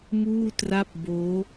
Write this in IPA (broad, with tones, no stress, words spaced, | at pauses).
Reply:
muː˥˩tra˥˩p̚ boː˦˥